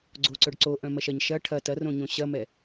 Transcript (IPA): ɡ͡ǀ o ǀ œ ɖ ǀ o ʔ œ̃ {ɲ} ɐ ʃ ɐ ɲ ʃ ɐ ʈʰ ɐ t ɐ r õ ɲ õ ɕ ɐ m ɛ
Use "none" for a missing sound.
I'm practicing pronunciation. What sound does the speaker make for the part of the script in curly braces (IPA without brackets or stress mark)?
m